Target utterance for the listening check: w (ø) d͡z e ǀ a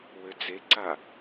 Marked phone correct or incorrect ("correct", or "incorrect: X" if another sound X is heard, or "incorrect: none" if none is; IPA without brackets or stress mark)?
correct